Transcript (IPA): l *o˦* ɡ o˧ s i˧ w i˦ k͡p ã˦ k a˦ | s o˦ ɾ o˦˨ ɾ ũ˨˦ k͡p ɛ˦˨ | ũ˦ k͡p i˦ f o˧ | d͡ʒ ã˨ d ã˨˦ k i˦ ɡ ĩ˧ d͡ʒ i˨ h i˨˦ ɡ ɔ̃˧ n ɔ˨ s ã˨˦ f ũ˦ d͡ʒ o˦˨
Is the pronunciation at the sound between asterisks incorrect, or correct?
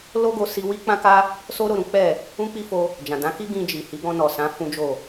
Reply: correct